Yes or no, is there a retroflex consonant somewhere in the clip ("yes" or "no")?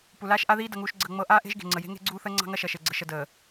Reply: no